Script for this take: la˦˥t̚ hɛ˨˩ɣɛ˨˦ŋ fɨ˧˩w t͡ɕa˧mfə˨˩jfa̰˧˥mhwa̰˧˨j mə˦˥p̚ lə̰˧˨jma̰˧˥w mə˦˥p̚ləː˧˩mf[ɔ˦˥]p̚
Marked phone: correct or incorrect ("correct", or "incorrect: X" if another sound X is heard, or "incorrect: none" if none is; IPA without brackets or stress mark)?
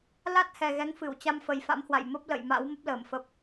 incorrect: ə˦˥